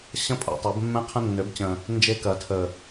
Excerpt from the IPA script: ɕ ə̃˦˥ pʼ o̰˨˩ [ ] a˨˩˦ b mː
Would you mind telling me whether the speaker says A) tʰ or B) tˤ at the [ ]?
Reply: B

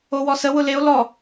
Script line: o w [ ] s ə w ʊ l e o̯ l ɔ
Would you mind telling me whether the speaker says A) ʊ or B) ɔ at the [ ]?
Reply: B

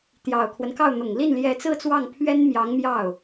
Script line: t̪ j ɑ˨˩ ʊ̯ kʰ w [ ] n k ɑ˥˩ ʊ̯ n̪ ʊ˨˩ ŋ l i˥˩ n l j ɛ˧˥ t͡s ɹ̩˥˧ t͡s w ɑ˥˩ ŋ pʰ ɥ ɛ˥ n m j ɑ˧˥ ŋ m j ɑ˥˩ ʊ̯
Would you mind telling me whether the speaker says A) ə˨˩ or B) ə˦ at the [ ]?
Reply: B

